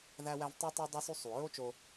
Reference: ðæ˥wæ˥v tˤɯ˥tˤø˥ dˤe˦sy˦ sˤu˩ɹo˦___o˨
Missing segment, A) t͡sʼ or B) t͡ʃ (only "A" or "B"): B